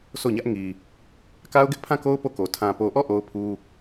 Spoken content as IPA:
sʰ o˦˨ ɲ ä˦ ʔ ŋ i˨ | k a˦ ʊ̯ ɡ ɪ˦ ʔ pʰ ã˦˨ k o˦ ʊ̯ p o˦˨ k o˨ tʰ ã˨ p o˨ ʔ ɔ˦˨ ʔ o˦ ʊ̯ pʰ u˦

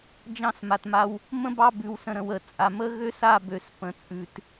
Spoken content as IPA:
d͡ʒ ɑ̃˦ s m a˨ t m a˦ w | m ə̃˦ b ɑ˦˨ b ʉ˨ w s ə̃˨ ɾ ə̃˨ w ə˨ t͡sʼ a˨ m ə˦ ɣ ø˦ s a˦˨ b ø˨ s p ə̃˨ t͡sʼ ʉ˨ t

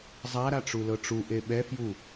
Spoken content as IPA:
zˤ a ɾ a ʈ͡ʂ u l ɤ ʈ͡ʂ u ʔ e ɓ ɛ f j u

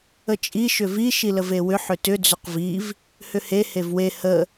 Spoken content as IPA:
ə t͡ʃʼ i ʃ ʏ v i ʃ i l ə v e w ʏ ħ ʏ t ʏ d͡z ʏ q v i v | h ʏ h e h e v w e h ə

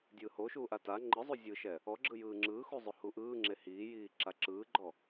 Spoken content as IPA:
dʲ ɯː h o ʃ uː ʔ a t a ŋ͡ǃ ɯ zˤ u zʲ ɯ ʃ ɛ | ɔ ɡ͡ǁ ɯ j ɯː ŋ͡ǁ ɯː x u zˤ o h u ʔ ɯː ŋ͡ǁ e h iː j iː ǁ a ǁ ɯː ɡ͡ǃ ɔ

